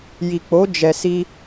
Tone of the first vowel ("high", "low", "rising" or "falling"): low